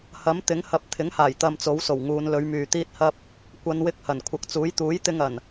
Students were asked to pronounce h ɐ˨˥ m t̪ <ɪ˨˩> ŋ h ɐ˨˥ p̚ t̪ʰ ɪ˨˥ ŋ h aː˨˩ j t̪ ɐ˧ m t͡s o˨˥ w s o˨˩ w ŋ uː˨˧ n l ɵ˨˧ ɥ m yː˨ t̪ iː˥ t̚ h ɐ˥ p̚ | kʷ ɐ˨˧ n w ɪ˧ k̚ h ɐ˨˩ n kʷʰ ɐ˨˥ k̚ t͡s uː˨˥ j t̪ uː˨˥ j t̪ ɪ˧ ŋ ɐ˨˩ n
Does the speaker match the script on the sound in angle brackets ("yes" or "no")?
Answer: no